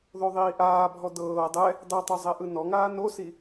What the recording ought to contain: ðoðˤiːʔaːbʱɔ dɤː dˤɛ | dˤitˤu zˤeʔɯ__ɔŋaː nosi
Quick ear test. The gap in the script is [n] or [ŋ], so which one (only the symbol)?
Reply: n